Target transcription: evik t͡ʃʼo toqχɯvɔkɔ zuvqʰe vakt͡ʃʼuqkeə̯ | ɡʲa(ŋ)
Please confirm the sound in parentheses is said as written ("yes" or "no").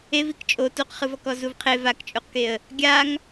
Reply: yes